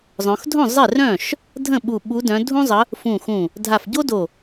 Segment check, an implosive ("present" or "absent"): present